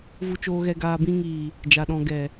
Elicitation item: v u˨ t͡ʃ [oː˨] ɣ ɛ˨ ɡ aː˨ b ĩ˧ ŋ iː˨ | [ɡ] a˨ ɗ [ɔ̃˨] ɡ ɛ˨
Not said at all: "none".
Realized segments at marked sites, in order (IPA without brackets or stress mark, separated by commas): oː˨, d͡ʒ, ɔ̃˨